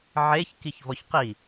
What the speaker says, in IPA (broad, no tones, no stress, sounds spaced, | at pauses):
ʕ e ç k i ç v ɔ ç q i